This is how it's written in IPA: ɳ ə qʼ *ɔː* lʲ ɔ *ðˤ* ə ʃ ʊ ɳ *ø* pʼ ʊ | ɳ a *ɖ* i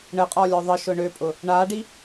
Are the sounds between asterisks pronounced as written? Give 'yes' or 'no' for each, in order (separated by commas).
no, yes, yes, yes